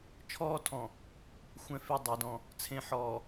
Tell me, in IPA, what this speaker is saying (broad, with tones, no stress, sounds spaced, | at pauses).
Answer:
t͡ʃʰ ɔː˦ tʰ ɔ̃˨ | xʷ ɛ̃˨ f e˨ dˤ ɛ˨ d ɔ̃˦ | t͡sʰ ẽ˨˦ ħ ɔː˨